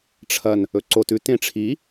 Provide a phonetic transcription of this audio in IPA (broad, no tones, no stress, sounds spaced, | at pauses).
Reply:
ʈ͡ʂʰ ɐ n | ɵ ǀ o t ʉ t ẽ ʈ͡ʂʰ i